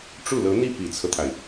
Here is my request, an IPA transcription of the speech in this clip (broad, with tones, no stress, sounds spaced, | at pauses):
ʈ͡ʂ u˥˩ l ɤ˧˥ n̪ i˥˩ p i˨˩ t͡sʰ ɤ˦ t̪ʰ a˩ ɪ̯